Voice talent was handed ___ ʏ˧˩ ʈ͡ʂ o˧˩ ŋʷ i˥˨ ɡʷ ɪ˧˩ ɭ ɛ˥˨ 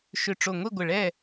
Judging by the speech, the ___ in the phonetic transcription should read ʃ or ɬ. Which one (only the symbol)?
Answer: ʃ